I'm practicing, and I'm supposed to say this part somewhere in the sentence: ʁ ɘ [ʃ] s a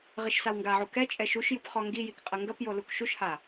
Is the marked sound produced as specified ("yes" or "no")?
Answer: yes